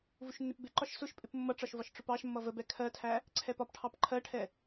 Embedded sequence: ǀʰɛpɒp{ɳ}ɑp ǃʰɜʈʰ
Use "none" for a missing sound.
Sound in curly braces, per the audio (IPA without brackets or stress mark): ʈʰ